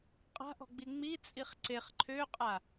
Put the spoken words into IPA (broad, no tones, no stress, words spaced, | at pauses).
qʼa̤ʔɔ̤ɡ͡bi ŋ͡mit͡sʼiχ ǀeχ ǃʰøqʼa